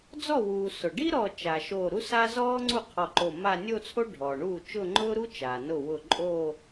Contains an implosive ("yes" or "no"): no